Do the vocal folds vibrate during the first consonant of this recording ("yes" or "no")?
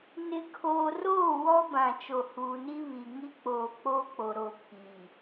yes